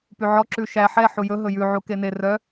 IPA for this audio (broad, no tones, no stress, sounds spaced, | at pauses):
p y ʕ ɔ ǁ ʉ ʃ æ ħ ɛ ħ u j ɵ ɦ ɵ j ʉ ʕ u k e n e r œ